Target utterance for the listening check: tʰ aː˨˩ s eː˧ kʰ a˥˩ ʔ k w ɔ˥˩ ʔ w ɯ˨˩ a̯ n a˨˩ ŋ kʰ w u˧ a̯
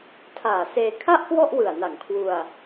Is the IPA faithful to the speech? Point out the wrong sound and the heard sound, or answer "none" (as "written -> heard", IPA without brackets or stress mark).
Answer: none